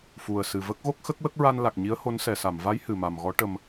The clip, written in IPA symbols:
f u˨˩ ə̯ s ɨ˨˩ v ə˦˥ k̚ ɣ o˦˥ k̚ x ə˦˥ k̚ w ə˦˥ k̚ ɹ a˧ n l a˨˩ k̚ ɲ i˧˥ ə̯ h o˧˥ n s ɛ˨˩˨ s a˨˩˨ m v a˧˥ j h ɨ˨˩ m a˨˩ m ɣ ɔ˧˥ ʈ ə˧ m

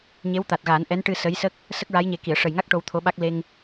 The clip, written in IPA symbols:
ɲ e˧˥ w t̪ a˨˩ t̚ ɣ a˨˩˦ n ʔ ɛ˧˥ n ʈ ɨ˧ s ə˧˥ j s ə˦˥ k̚ | s ə˦˥ k̚ ɹ a˧˥ j ɲ e˨˩˦ k i˨˩˨ ə̯ ʂ ə˨˩ j ŋ a˦˥ k̚ ʈ o˧ w t̪ʰ o˧˥ ɓ a˦˥ k̚ l e˧ ŋ

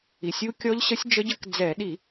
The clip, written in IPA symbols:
i˨˩ sʲ u˦˥ kʲ ɔ˦˥ ʎ ɕ ə˦˥ sʲ d͡ʒ ə˦˥ ɟ ə˦˥ k d͡z ɛ˧˩˧ ɗ i˧˩˧

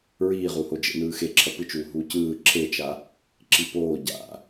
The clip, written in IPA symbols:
ɹ iː ʁ u h o d͡ʒ ḛ n ɯː x e ǁʰ ʌ p ɯ t͡ʃ uː ɦ uː c ɯː ǁʰ e t͡ʃ a | ǁ i p oː ɟ a̰

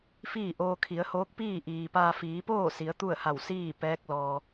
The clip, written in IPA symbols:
f iː˥˨ ʔ oː˧ kʰ i˩˧ ə̯ h oː˧˥ k̚ p iː˥˨ ʔ iː˩ p aː˧ f iː˩˧ p oː˥˨ s i˩˧ ə̯ t̪ u˥˨ ə̯ h a˧˩ w s iː˥˨ p ɛː˧˥ k̚ l ɔː˩

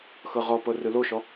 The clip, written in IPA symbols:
x ɤ ʁ ɔ p ɤ r ɯ l o ʃ ɔ

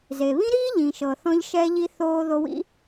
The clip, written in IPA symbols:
z e˨ β ĩ˦ ɾ iː˦ ʎ ĩ˨ ʃ ɤ˨ θ ɔ̃˧ ʎ ʃ ɛː˧ ʎ i˧ θ oː˧ ð o˧ w ḭ˦

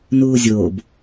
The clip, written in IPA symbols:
n uː zʲ o b

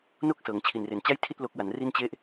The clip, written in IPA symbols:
n o˥˩ k̚ s ɤː˩˦ ŋ t͡ɕʰ i˨˩ n r e˩˦ n t͡ɕ a˥˩ j tʰ i˥˩ t̚ l o˦˥ k̚ w a˩˦ n r i˥˩ n t͡ɕ e˥˩ ʔ

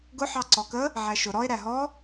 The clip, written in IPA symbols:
ɡ ʊ ħ ɑ ǀ ɔ k ə | ʕ æ ʃ ʊ ɾ ɔ e̯ ɾ æ ɦ ɔ

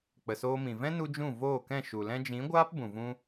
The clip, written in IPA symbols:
k͡p ə˨ s oː˧ m ĩ˨ v ɛ̃˦ n u˧ d͡ʒ ũ˦˨ v oː˦˨ k ɛ̃˦˨ ʃ u˨ l ɛ̃˧ d͡ʒ ĩ˨˦ ɡʷ aː˦ p b ũ˨ v ũ˧

